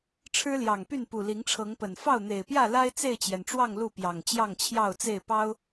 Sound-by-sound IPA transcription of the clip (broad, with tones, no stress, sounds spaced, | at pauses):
ʈ͡ʂʰ ɻ̩˦ l j ɑ˨˩ ŋ p y˥˨ n p u˨˩ l i˨˦ ŋ ʈ͡ʂʰ ɤ˨˦ ŋ p ə˨˩ n f ɑ˥˨ ʊ̯ n̪ e˨˩ ɪ̯ p j ä˥˨ l a˦ ɪ̯ t͡s e˥˨ ɪ̯ t͡ɕ j ɛ˩ n ʈ͡ʂ w ɑ˥˨ ŋ l u˥˨ p j ɑ˨˩ ŋ t͡ɕ j ɑ˥˨ ŋ t͡ɕʰ j ɑ˥˨ ʊ̯ t͡s e˥˨ ɪ̯ p ɑ˦ ʊ̯